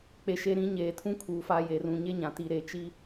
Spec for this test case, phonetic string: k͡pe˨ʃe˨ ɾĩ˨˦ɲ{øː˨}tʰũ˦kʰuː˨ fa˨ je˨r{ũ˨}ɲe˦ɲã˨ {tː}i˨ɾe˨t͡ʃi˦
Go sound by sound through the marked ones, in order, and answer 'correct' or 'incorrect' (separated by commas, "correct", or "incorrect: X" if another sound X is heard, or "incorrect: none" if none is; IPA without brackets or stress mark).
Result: incorrect: eː˨, correct, incorrect: t